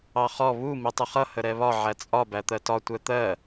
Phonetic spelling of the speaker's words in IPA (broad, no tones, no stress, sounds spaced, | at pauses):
ɑ χ ɔ β u m i tˤ ʊ χ ʌ h ə ɾ ɛ β ɒ ʕ æ t͡sʼ ɒ b æ t̪ ɜ t ɒ tʷ ɛ t̪ ɜ